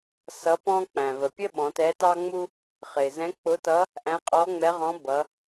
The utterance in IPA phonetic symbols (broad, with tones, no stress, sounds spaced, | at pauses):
s ʌ˧˥ p ɔ̃˥ k͡p æ̃˩ v ə˩ pʲ ə˥ ɓ ɔ̃˩˧ t ɛ˧˥ t ɑ˥ ŋ͡m u˥ | χ ɪ˩ z ɛ̃˧˥ k͡p ʊ˧˥ t ʌ˧˥ | ʔ æ̃˧˥ qʼ ɔ˧˥ ŋ͡m ɛ˧˥ ʁ ɔ̃˧˥ b ʌ˩˧